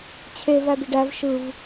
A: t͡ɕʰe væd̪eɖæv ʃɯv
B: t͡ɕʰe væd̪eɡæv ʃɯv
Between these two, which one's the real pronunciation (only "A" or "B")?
A